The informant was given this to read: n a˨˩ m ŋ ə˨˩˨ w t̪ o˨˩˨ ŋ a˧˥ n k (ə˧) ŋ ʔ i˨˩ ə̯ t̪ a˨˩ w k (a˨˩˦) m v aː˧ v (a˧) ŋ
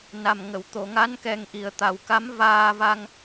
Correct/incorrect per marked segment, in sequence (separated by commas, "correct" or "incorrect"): incorrect, incorrect, correct